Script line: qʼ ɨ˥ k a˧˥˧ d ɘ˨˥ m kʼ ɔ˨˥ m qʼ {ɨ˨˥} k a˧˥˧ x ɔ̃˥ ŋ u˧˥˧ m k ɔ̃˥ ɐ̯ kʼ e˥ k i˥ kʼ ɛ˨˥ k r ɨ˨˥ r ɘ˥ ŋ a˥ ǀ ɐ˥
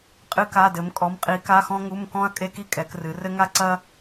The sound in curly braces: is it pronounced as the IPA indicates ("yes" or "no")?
no